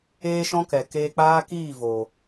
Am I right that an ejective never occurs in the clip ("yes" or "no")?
yes